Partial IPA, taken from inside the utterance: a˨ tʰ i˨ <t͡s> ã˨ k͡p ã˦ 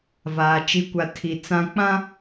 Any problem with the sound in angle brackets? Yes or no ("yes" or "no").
no